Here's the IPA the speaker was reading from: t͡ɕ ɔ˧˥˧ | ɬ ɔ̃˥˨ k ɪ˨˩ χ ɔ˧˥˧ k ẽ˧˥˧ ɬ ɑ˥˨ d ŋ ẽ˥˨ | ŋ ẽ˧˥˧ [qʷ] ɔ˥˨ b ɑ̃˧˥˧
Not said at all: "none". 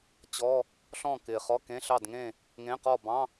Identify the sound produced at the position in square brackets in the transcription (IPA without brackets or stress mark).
q